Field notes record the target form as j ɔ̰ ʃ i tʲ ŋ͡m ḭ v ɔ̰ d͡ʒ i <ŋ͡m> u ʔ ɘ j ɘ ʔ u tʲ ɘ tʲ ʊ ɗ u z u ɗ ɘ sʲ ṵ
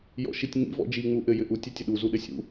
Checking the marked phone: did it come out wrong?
no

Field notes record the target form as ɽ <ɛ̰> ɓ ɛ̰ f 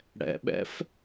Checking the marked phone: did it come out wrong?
no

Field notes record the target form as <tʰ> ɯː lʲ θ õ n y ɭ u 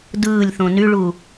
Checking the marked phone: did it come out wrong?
yes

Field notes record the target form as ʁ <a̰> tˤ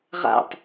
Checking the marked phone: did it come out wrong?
no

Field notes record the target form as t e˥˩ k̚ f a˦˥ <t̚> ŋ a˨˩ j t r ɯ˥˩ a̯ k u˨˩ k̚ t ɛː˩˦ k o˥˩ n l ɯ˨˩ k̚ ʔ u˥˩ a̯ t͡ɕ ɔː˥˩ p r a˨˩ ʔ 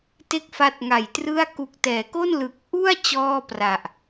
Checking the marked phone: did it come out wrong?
no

